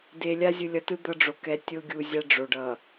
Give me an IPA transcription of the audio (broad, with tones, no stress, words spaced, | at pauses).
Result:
de˨ lʲa˦zʲɯ˨lʲʌ˨tɯ˦ d̪ʌ˦ɖ͡ʐo˨ kɛ˨ tʲo˦ɡʲu˨zʲa˦ ɖ͡ʐo˨ɖʌ˨